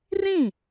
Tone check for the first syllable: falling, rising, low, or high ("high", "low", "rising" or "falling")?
falling